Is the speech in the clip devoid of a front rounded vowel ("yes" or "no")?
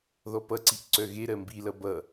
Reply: no